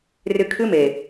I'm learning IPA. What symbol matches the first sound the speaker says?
r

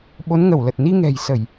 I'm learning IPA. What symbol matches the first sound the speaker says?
ɓ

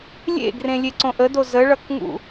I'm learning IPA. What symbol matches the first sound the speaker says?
lʲ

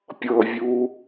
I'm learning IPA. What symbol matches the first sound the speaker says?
pʲ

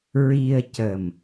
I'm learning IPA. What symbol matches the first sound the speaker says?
ɹ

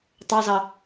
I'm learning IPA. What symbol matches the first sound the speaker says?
tˤ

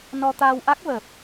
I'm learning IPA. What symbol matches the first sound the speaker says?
n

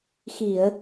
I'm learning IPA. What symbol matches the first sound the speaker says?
x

